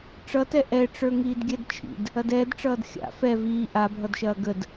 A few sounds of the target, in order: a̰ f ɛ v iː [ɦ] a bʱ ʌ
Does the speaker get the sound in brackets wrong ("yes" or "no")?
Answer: yes